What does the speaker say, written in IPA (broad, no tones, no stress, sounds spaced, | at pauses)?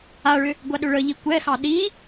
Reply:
a ɭ ʏ | ɡʷ a ɗ ʏ ɭ ə ʎ i kʷ ɛ x ɑ ɗ i